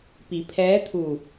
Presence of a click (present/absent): absent